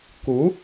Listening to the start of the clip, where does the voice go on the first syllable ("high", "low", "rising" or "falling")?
rising